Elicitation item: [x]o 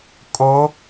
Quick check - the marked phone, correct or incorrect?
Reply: incorrect